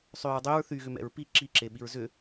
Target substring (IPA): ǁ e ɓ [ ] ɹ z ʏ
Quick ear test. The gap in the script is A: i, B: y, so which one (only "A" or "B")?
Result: A